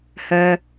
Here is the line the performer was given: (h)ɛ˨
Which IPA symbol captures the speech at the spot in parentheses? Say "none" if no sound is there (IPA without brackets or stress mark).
h